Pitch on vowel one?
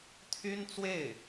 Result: high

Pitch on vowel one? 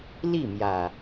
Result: falling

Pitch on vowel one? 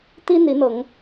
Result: high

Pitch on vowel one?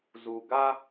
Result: low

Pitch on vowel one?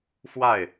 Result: falling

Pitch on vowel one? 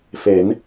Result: rising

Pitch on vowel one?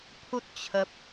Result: high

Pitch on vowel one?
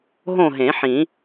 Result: falling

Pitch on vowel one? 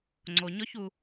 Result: low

